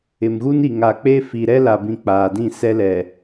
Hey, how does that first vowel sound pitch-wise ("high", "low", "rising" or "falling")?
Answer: low